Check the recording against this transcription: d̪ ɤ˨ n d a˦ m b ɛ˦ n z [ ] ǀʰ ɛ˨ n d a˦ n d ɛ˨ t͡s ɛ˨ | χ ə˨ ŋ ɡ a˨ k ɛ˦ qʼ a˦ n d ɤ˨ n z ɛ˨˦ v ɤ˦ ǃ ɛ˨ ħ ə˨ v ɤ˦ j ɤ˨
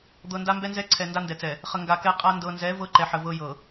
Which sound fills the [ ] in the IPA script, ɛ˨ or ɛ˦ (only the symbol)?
ɛ˦